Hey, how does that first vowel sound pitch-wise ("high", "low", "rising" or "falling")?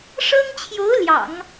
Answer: high